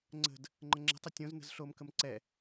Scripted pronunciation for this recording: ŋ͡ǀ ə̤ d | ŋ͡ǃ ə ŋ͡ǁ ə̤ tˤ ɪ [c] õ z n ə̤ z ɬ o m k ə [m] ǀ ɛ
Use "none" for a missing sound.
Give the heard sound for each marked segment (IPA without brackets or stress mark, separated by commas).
tʲ, m